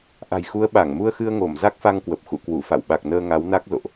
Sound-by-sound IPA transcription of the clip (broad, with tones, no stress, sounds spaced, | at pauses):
ʔ a̤˨˩ j x u˨˦ ə̯ ɓ a˧˩ ŋ m u˧ ə̯ x ɨ˧ ə̯ ŋ o˧˩ m z a˦˥ k̚ f a˧ ŋ k w ə˨˩ p̚ x ṵ˧˨ k w u˧˩ f a̰˧˨ w ɓ a˨˩ k̚ n əː˧ ŋ a˨˦ w n a˦˥ k̚ z o̰˧˨ ʔ